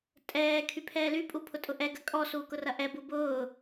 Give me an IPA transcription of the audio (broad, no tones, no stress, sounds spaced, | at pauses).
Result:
tʼ ɛː kʰ y pʰ ɛː l y pʼ u pʰ ʊ tʼ ʊ ʔ ɛ ɡ ɐ kʼ ɔ s uː k ʊ r ɐ ʔ ɛ b u b ʊː